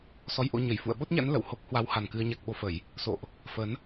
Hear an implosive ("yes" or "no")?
yes